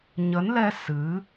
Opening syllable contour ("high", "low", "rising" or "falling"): rising